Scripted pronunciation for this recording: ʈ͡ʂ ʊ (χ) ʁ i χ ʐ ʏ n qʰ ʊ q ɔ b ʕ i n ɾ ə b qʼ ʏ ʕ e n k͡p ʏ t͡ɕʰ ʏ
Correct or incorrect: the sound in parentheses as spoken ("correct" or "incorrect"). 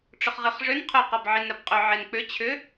correct